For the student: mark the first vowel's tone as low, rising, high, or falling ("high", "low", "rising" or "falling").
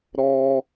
high